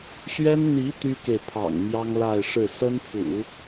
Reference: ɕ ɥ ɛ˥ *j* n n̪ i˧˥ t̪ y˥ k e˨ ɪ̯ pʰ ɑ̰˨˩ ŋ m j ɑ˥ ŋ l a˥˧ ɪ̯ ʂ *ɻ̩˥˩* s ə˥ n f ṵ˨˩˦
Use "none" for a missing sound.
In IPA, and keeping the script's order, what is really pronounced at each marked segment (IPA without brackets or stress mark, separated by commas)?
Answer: none, ɻ̩˥˩